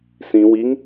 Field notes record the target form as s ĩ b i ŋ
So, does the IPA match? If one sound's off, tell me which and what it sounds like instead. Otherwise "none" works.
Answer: b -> w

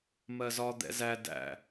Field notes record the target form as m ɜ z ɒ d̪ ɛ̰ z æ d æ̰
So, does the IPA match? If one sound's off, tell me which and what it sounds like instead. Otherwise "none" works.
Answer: none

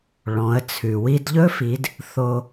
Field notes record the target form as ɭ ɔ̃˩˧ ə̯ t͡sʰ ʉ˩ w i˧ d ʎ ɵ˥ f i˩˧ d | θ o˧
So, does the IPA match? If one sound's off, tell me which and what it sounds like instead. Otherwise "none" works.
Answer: none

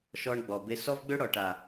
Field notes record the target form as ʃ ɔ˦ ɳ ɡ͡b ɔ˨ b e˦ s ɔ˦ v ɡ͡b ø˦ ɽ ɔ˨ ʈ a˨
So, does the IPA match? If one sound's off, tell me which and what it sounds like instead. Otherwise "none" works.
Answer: none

